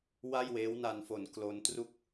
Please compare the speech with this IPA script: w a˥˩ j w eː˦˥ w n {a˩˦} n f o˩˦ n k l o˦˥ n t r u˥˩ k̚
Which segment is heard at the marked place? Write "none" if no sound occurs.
a˧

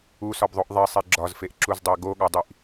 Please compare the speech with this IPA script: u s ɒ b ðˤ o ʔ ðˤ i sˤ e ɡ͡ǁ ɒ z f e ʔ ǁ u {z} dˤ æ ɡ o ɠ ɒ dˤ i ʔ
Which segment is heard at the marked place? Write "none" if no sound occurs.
z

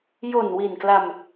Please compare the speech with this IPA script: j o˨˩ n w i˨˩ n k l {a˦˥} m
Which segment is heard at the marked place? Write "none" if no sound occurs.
a˧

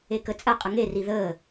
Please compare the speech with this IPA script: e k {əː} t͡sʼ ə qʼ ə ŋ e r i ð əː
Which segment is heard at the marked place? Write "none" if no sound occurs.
ə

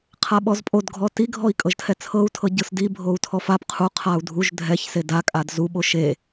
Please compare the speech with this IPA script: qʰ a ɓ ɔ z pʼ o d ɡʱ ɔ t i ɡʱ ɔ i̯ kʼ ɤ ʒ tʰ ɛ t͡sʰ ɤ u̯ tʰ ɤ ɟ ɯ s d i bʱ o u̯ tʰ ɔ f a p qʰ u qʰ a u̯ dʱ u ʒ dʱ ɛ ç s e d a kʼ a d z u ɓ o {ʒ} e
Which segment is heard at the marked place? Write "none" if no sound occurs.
ʃ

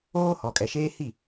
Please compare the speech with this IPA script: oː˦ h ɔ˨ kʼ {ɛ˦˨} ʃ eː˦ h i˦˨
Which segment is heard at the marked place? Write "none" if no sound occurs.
ɛ˨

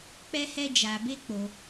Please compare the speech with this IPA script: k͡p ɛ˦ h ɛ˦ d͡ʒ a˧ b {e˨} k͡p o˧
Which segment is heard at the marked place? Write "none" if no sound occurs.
e˦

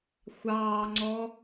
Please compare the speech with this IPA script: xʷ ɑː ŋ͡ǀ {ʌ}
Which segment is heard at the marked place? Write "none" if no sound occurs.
ɔ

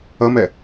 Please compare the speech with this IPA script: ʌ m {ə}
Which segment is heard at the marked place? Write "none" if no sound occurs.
ɛ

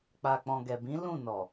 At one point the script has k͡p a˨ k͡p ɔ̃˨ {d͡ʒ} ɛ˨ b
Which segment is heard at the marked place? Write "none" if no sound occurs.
ɡ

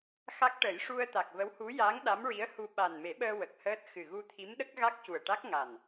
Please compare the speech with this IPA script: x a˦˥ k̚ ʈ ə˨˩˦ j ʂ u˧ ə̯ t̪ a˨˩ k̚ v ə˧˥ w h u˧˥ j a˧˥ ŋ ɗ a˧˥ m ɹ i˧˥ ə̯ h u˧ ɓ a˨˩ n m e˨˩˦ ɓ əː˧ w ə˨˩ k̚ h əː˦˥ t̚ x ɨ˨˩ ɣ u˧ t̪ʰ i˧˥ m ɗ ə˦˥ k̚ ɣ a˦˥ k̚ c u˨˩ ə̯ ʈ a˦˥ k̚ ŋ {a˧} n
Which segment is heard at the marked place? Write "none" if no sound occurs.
a˨˩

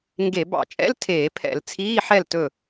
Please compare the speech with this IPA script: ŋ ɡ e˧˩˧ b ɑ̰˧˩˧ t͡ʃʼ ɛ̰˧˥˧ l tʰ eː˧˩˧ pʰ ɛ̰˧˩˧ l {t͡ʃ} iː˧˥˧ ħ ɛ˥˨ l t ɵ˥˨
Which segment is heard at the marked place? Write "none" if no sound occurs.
t͡sʰ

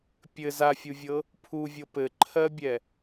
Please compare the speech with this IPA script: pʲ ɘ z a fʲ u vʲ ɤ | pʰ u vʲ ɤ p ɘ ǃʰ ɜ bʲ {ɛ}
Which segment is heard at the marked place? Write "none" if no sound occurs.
ɛ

